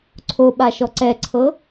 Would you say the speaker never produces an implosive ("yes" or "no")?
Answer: no